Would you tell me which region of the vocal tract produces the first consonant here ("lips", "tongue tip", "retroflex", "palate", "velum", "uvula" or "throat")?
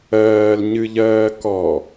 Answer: tongue tip